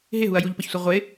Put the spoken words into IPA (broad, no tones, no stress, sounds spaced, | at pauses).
ɦ ɪ ɦ u ɐ̯ j u ʎ p ʌ ç sʷ ɛ ʁʷ ɪ